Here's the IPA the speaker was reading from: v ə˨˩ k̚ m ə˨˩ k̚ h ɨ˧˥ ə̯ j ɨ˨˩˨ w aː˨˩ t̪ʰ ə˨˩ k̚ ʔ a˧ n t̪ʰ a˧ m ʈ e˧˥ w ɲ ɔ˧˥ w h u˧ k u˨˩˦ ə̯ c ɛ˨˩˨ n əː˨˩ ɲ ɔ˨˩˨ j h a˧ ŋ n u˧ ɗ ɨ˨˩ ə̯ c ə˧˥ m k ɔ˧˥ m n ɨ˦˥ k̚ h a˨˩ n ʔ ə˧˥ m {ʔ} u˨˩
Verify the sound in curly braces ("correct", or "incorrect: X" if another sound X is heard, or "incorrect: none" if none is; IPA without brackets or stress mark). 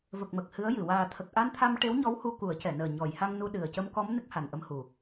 incorrect: h